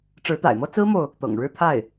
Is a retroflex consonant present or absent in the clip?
present